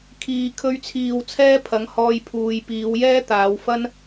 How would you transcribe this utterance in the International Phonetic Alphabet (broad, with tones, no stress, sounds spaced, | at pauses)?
kʰ iː˨ kʰ ɵ˧ ɥ t͡sʰ iː˨ w t͡sʰ ɛː˥ pʰ ɐ˨˥ ŋ h ɔː˧ j pʰ uː˨ j p iː˨˧ w j ɛː˥ t̪ aː˨˧ w f ɐ˥ n